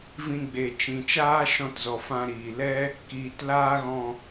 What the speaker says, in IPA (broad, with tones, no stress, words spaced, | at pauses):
vĩ˧ɡ͡be˨t͡ʃĩ˨ t͡ʃaː˦ʃɔ̃˧tzɔ˨fã˧ ɾiː˨lɛ˦ | kiː˨t laː˦ɣɔ̃˧